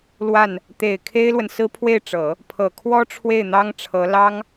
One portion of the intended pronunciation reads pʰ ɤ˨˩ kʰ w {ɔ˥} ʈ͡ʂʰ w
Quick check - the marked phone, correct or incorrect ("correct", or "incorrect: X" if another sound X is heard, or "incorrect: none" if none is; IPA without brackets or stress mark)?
correct